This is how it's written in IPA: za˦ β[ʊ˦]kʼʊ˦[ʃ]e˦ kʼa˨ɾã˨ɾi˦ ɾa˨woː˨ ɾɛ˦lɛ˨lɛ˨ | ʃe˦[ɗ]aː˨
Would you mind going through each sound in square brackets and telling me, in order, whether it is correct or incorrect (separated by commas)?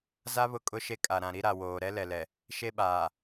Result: correct, correct, incorrect